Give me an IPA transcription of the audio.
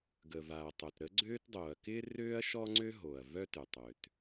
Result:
ɡə˩va˩ɐ̯tˤœ˩t ɾə˥ɡ͡ǀøː˥t dˤoː˩ɐ̯kɪː˥ røː˥ɐ̯ʃɔ˥ŋ͡ǀø˥ ɦo˩ɐ̯ vœ˥tʏ˩tˤø˩t

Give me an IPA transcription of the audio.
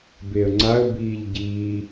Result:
beə̯ŋ͡ǀaə̯ biːʎɟiː

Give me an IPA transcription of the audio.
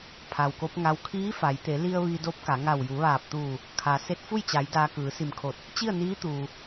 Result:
pʰa˩wko˧˥p̚ŋa˧˥w kʰiː˧˥fa˩˧jt̪e˩˧li˧ə̯ ʋi˧do˧˥p̚ka˩˧ ŋa˧˩wju˩˧ʋaː˧˩p̚t̪uː˧˩ | kʰa˩˧ se˧˥t̚fu˥˨jt͡ɕa˩˧j daː˧kɯː˩˧si˧˩mkʰo˧˩t̚ | t͡ɕi˥˨ə̯niː˧˥t̪uː˩

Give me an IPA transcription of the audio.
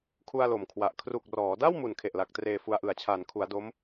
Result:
kʰu˧a̯lo˨˩mkʰwa˨˩ʔ kʰru˨˩k̚rɔː˩˦da˥˩w mu˨˩nkʰe˨˩ʔla˨˩k̚ treː˧fu˧a̯ ʔɯ˩˦a̯t͡ɕʰaː˩˦nkʰu˩˦a̯ do˦˥m

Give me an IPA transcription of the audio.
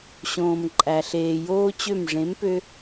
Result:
ɕõː˨mǃʼæ˨ɬeː˨ joː˦t͡ɕø˦˨m ʐẽ˨˦mpø˧

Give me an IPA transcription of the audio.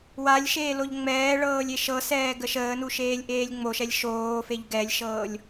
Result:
walʲ ʃeːloʎŋ͡mɛːɭɤːlʲ eʃɤsɛː ɡəʃəːnu ʃeːlʲʔeːlʲŋ͡moʃɛlʲ ʃoːfeʎ ɡɛlʲʃɤːlʲ

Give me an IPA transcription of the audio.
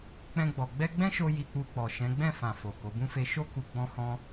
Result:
k͡pɛ̃˧ɡ͡bɔ˨ ɡ͡bɛ˧ɡ͡bɛ̃˦ʃo˧ ji˧k͡pu˧k͡pɔ˨ ʃɛ̃˨˦ɡ͡bɛ̃˦˨ fã˨ fo˨ ko˨˦bũ˦fe˦ ʃo˦ku˧ ɡ͡bɔ̃˦hɔ̃˦

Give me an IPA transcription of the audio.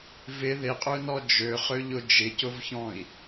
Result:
vɪ ðɪqʼønɔ d͡ʒøχøʎʊ d͡ʒɪcʊvçɔ̃i̯

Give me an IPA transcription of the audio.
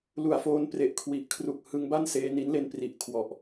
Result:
lu˨˩a̯foː˦˥n pre˨˩ʔkʰwi˨˩ʔkʰru˨˩k̚ hɯ˧ŋba˥˩n seː˧ni˦˥nle˦˥n pri˨˩ʔkʰwɔ˨˩ʔ

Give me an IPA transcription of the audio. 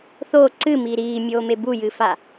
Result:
θoː ǀɨmiː ɾiːmʲoːme bujɨfa

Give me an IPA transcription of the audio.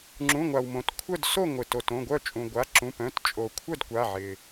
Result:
ŋ͡ǁũ˩˧˩ŋʷa˩w mõ˩tkʷʰœ˥˨d so˥˨ŋʷɪ˩ to˩tõ˩˧˩ɡʷœ˥˨t͡ʃʼũ˩ ɡʷa˩˧˩ǁũ˩˧˩pœ̃˩˧˩t t͡ʃʼo˩kʷʰœ˥˨dkʷa˩˧˩ʕɪ˩

